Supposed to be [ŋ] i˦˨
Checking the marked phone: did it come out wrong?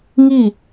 no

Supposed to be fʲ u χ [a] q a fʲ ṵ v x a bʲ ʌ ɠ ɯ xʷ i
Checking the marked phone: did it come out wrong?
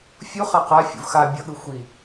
no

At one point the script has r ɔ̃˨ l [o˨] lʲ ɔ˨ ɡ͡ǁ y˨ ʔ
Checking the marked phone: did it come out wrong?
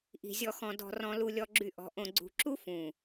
yes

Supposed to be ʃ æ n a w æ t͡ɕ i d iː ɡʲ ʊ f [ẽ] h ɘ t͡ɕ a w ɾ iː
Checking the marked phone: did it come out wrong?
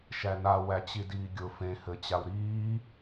no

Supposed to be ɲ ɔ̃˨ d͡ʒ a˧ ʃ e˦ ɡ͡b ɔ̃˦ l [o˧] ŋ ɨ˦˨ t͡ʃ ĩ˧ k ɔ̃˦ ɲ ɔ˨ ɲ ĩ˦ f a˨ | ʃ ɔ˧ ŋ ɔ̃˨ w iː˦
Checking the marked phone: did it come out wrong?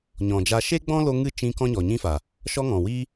no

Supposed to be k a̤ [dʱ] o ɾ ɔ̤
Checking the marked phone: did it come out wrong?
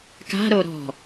yes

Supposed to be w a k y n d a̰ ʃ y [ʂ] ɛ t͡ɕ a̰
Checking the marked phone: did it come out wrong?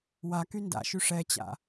no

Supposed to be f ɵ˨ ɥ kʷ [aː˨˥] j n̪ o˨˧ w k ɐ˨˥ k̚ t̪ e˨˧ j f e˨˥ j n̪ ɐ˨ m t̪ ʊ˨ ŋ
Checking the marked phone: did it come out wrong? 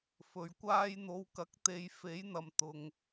yes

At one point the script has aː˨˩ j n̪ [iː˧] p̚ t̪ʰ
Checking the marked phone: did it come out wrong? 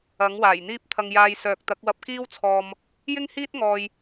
yes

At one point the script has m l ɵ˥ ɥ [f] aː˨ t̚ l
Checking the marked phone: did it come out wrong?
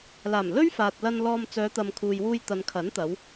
no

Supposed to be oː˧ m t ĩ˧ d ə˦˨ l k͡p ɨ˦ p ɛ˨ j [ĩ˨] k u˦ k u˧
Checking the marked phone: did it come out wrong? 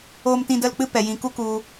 no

